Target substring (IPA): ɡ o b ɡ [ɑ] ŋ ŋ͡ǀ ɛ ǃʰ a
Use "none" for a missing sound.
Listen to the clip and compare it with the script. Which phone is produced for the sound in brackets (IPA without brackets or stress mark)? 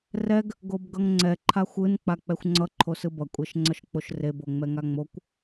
ʌ